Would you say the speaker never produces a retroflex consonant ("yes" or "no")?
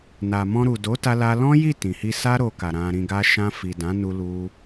yes